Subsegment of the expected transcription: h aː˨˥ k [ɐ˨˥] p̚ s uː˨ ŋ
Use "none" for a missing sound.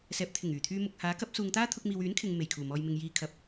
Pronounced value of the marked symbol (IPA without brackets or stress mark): ɐ˨˥